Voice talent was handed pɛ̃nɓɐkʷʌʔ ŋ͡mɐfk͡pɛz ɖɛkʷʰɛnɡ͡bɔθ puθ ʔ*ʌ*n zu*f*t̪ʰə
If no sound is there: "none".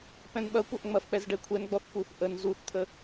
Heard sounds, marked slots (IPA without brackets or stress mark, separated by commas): ə, θ